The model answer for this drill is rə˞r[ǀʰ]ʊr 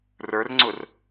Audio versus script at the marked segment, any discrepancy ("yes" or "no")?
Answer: yes